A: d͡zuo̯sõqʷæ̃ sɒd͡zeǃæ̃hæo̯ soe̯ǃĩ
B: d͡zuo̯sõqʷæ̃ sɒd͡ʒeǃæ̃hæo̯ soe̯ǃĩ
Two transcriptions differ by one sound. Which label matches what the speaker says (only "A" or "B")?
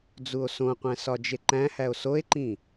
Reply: B